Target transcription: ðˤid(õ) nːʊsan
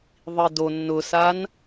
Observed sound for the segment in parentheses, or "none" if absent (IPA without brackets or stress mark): o